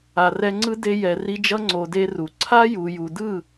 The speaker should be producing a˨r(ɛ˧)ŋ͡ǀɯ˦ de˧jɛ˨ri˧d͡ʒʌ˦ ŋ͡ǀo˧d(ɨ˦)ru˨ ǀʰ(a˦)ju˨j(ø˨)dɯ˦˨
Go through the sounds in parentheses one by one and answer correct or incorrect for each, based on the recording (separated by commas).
correct, incorrect, correct, incorrect